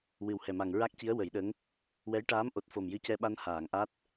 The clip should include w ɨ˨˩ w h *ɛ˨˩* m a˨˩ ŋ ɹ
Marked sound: correct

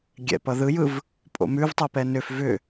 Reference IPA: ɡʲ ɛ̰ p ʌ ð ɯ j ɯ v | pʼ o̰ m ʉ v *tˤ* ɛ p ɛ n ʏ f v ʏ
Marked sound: correct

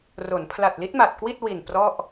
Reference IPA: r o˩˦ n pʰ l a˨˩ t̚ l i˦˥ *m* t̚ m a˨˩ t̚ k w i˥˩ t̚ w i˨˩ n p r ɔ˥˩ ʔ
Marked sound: incorrect: none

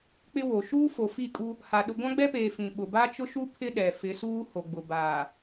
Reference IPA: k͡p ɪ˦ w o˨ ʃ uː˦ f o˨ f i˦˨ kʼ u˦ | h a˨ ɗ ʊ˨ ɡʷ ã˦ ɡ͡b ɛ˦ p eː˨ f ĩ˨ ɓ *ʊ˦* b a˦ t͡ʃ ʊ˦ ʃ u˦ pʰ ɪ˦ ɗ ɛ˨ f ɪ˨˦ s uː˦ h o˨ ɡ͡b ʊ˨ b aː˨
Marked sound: incorrect: ʊ˨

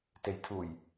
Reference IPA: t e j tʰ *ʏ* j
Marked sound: incorrect: u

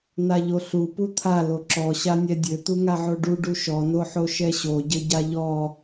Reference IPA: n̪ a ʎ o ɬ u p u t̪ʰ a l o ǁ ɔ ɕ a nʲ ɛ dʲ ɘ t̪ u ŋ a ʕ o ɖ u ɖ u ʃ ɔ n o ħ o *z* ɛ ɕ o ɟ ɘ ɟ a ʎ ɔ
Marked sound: incorrect: ʃ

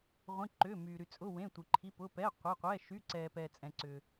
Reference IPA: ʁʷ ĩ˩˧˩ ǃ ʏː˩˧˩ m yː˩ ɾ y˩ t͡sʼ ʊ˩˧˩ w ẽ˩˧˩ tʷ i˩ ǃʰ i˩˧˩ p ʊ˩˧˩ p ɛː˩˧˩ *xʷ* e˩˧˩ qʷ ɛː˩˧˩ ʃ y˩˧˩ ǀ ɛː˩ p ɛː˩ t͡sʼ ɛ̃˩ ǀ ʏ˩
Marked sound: incorrect: qʷ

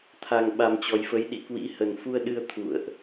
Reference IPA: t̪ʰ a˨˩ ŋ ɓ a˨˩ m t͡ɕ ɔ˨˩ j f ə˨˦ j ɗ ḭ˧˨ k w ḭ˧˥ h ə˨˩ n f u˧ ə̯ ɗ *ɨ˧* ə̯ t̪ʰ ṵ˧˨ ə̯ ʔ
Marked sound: correct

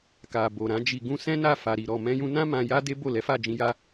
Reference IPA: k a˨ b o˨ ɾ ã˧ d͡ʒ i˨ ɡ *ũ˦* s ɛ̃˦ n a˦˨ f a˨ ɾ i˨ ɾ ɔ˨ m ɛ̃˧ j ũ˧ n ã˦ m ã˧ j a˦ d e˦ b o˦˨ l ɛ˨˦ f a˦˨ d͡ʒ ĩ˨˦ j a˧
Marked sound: incorrect: ũ˧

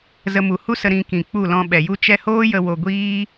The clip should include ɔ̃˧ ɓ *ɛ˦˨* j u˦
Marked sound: incorrect: ɛ˨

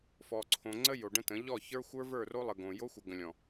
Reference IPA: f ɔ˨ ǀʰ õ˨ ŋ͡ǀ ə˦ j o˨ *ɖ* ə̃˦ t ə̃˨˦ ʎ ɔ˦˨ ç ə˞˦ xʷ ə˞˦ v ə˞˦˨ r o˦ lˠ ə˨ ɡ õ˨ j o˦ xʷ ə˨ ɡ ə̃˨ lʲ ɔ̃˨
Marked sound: correct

